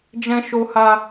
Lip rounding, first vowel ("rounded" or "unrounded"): unrounded